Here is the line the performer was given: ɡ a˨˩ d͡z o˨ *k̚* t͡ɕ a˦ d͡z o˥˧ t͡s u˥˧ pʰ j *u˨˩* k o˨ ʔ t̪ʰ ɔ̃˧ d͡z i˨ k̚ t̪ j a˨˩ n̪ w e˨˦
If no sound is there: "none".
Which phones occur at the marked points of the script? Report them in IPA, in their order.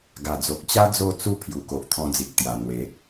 k̚, u˨˩

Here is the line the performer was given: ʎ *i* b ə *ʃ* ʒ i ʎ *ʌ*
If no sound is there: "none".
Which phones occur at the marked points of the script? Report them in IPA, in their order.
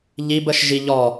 i, ʃ, ɔ

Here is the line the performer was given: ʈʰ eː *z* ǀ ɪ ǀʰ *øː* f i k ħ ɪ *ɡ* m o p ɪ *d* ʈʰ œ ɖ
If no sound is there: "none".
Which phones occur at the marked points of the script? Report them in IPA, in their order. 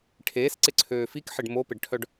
s, øː, ɖ, ɖ

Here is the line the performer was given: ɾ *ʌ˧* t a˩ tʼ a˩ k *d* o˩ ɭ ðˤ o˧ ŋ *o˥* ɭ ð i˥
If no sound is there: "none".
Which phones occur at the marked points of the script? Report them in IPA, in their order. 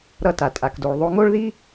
ʌ˧, d, o˥

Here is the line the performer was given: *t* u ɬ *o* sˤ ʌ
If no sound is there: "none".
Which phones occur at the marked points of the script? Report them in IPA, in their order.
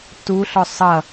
t, ɔ

